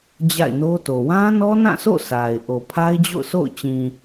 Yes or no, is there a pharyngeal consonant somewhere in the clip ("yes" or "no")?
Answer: no